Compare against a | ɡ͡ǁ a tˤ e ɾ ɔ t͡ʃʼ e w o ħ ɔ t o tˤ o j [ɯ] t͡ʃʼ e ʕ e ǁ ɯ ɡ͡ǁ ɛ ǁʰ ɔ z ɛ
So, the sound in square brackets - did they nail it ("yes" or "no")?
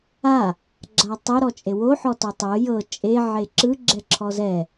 no